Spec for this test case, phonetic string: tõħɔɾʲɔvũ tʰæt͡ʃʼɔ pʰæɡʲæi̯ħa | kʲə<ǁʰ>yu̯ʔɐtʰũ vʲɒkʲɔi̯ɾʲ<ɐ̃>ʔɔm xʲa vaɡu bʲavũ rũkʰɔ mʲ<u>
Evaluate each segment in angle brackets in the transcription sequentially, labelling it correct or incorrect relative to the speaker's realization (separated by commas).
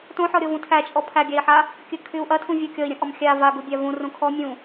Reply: incorrect, correct, incorrect